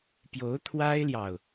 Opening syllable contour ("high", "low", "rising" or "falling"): rising